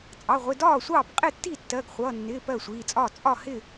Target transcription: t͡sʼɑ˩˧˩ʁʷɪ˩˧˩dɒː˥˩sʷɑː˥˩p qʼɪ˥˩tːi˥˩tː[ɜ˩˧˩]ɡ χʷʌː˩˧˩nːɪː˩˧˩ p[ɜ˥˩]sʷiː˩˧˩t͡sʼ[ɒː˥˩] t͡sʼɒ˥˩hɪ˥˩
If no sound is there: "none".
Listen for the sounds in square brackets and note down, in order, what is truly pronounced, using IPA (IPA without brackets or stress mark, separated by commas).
ɜ˩˧˩, ɜ˥˩, ɒː˥˩